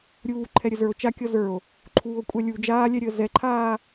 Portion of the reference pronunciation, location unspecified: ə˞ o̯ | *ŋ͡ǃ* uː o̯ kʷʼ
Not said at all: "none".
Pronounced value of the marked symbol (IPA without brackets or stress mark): ǃʰ